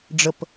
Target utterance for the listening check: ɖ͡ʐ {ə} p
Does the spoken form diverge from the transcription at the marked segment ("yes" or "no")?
no